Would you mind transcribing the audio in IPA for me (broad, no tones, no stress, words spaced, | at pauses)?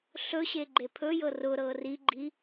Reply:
ɬɵɕeɡ͡ǃe pʰɵjɤ rʊɾɤ riɡ͡ǃi